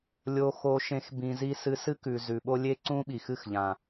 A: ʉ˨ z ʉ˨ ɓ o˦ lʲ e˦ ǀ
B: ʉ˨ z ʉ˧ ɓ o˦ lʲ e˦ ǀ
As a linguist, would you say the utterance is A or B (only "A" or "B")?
A